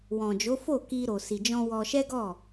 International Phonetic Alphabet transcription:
w ɔ̃˨ d͡ʒ o˨˦ f o˦˨ k i˧ ɾ o˨ s i˨ d͡ʒ ɔ̃˧ w ɔ˧ ʃ ɛ˦ ɡ ɔ˦˨

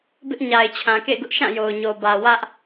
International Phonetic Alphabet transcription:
b ɪ˦ ʔ ɲ a˨ ɪ̯ t͡ɕʰ ã˨ k ḛ˦˨ ɪ̯ ɡ ʊ˦ ʔ ʃ ã˦˨ j o˨ ʊ̯ ɲ o˨ b ä˨ w ä˦ ʔ

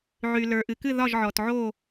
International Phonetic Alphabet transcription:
ʕ y˩ l ə˞˩ ʔ ɨ˩ k ɨ˥˨ ð ɒ˥˨ ʒ ʕ ɔ˩ t ʕ o˥˨

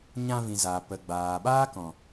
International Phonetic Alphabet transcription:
ɲ ã˧ v ĩ˨ z a˨ p ə˨ ɡ͡b aː˨ ɓ aː˦ k ɔ̃˨

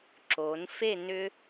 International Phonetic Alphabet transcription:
ǁ oː˩˧ n f e˥˧ n ʏ˥

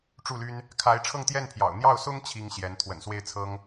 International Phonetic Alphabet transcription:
ʈ͡ʂ u˥˩ l y˥ n | kʰ a˧˥ ɪ̯ ʈ͡ʂʰ ɤ˥˧ ŋ t̪ j ɛ˥˩ n pʰ j ɑ̰˨˩ ʊ̯ n̪ j ɑ˥˩ ʊ̯ s ʊ˥ ŋ t͡ɕʰ i˥ ŋ ɕ j ɛ˧˥ n t̪ʰ w ə̰˨˩ n s w e˥˩ ɪ̯ t͡sʰ ɤ˥ ŋ

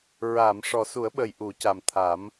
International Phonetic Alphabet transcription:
ɹ aː˨˩˨ m ʂ ɔ˨˩ s u˨˩˦ ə̯ ɓ ə˨˩ j ʔ u˨˩˦ c a˨˩ m t̪ʰ a˨˩˦ m

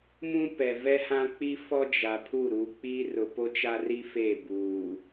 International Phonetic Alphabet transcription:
m ũ˦ p ɛ˨ v ɛ˦ h ã˦ k͡p i˦ f ɔ˦ d͡ʒ a˨ pʰ u˦˨ ɾ uː˨ k͡p iː˦ r ʊ˨ p o˦ t͡ʃ a˦ r i˦ f e˦˨ b uː˨

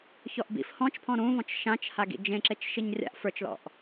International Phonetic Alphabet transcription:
ç ɔ ʔ b ḭ f h ɔ̃ t͡ʃ pʰ ɔ̃ ɾ ũ v ɔ̃ t͡ʃ ʃ ã t͡ʃ h a ɡ ḭ d͡ʒ ẽ ǁ e t͡ʃ ʃ i ɲ rʲ a̰ ʔ f ə˞ t͡ʃ l ɔ̰ ʔ

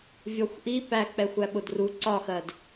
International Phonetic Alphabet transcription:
vʲ ɔ xʷ ʔ i p æ k͡p ɛ xʷ æ ɓ ʊ d r u ǀ ɒ x ɜ d

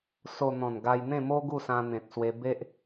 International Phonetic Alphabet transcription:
s o˧ n̪ ɔ̃˨˩ n ɡ a˧ j n̪ ẽ˥˧ m o˦ ɡ u˥˧ s ã˧ n̪ ẽ˨ t̚ s w e˧ b e˦ ʔ

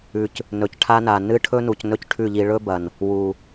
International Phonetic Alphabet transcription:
ʉ˨ c | n ɵ˨ c ʈʰ a˦ n a˨ n ɨ˦ ʈʰ ɵ˦ n u˨ c n ɵ˦ c ʈʰ ʉ˦˨ ʎ i˧ ɭ ɵ˦ b ɐ˨ n | w u˨

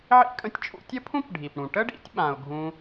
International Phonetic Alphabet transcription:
ʕ ḭ˥ kʼ ə̃˦ tʲ t͡ʃʼ ṵ˦ tʲ ə˥ pʰ ũ˥ p ɖʱ i˩ p ɽ ũ˩ ʈ ə˥ ɖ ḭ˦ tʲ ɓ ã˩ ʊ̯ ɡʱ ũ˨

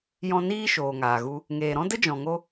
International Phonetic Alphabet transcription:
j ɔ̃˧ n iː˦ ʃ oː˨ ŋ aː˨ ɣ u˧ | ŋ eː˨ ɾ ɔ̃˦ d ə˦ d͡ʒ ɔ̃˨ ŋ o˧

